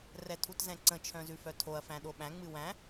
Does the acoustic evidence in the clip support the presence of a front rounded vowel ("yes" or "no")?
yes